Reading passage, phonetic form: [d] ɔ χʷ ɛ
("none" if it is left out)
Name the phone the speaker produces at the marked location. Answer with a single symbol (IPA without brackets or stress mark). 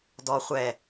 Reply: d